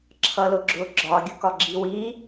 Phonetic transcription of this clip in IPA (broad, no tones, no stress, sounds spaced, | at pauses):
ǁʰ ʌ l ʊ ɡ͡ǁ ʊ ɡ͡ǁ ɒ ɡʲ ʊ k ɒ ɡ͡ǁ i w i